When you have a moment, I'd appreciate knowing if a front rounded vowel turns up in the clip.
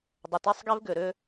yes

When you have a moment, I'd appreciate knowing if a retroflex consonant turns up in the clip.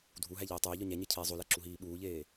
no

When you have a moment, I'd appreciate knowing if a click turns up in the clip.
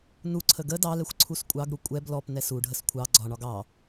yes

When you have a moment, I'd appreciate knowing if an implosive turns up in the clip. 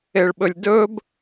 yes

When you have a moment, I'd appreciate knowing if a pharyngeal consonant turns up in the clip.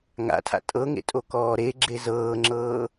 no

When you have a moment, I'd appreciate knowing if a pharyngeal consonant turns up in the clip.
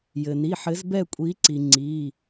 yes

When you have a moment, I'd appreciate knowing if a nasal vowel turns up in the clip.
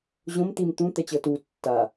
yes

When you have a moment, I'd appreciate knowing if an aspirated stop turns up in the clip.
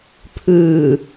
yes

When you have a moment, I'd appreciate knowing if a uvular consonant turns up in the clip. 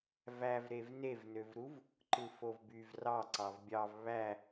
no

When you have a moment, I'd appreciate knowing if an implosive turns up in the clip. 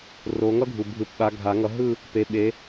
yes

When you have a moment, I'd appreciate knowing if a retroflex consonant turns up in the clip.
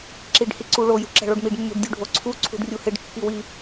yes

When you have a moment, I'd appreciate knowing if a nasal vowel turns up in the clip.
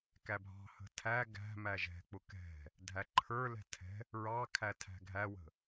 no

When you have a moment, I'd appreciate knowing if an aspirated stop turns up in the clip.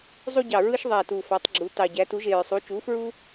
no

